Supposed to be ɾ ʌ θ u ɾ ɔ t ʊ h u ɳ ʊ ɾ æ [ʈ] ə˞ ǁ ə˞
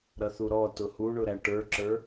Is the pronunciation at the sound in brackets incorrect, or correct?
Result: correct